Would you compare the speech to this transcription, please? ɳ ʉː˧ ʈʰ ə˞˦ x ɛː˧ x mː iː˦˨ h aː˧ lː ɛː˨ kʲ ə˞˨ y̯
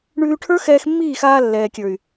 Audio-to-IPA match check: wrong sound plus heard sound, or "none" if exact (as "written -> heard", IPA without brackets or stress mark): h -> x